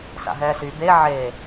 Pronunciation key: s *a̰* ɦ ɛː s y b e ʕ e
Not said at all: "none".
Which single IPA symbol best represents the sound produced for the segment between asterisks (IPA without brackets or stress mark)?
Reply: a̰